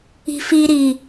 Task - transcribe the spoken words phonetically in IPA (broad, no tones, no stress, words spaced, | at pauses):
i̤fi ɾi